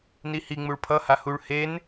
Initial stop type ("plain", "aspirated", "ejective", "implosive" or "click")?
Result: aspirated